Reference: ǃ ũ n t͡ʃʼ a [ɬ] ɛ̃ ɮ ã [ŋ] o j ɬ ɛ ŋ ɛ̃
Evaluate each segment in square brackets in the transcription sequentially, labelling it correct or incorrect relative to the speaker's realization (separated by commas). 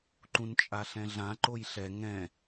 correct, incorrect